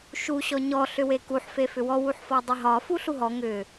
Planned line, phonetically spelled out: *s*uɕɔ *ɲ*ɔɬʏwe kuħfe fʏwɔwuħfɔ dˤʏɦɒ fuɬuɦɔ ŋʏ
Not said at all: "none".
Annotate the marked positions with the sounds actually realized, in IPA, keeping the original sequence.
ʃ, ɲ

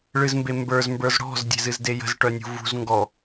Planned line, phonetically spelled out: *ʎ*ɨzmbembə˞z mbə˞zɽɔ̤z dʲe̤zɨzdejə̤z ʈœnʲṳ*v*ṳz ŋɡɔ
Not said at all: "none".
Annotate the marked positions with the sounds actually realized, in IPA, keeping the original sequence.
ɭ, v

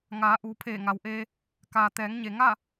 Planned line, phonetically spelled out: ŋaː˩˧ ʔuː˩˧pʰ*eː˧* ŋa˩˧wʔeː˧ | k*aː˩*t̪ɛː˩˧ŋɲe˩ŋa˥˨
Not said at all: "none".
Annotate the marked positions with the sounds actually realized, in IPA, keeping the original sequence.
eː˧˩, aː˩

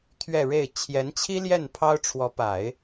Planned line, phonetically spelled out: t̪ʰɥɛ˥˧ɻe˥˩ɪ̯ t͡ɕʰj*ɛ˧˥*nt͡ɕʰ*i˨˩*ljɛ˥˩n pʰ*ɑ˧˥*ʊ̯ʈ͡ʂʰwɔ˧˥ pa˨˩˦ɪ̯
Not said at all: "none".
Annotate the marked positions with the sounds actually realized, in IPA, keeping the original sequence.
ɛ˧˥, i˥, ɑ˥

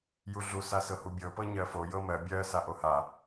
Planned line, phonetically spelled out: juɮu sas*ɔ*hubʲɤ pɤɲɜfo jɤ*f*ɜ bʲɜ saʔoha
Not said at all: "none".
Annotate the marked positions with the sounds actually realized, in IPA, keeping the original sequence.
ɤ, m

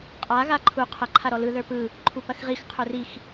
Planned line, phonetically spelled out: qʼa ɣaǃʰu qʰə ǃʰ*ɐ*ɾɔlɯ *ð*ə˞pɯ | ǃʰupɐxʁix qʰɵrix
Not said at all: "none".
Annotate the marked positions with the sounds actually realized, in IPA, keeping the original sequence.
a, ð

